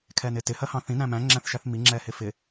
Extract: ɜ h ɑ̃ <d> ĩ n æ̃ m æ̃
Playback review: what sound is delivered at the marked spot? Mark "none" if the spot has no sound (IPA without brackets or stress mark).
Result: θ